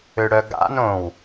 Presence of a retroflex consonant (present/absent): present